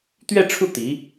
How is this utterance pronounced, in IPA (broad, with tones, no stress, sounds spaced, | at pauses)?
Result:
t̪ ɥ ɛ˥˧ ʈ͡ʂʰ u˥˩ t̪ i˧˥